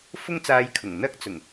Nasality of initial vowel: oral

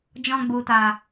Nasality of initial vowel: nasal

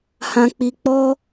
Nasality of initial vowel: nasal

